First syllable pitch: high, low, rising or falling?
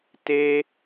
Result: high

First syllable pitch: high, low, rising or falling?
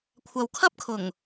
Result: low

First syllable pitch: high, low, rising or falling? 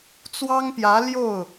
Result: high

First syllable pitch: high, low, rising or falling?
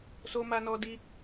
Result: high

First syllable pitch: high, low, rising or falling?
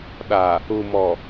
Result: low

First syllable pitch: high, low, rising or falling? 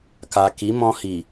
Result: low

